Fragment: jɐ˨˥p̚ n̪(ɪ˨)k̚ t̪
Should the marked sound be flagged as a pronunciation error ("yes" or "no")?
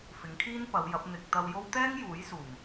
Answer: no